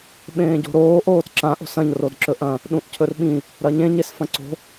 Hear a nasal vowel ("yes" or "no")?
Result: yes